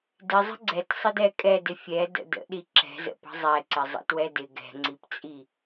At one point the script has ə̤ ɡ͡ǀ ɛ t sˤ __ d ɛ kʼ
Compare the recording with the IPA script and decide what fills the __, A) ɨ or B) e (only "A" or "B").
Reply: A